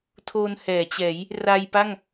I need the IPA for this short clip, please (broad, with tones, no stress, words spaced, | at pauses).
tʰo˧nhɛː˩˦t͡ɕɛː˩˦j | ra˧jpa˥˩ŋ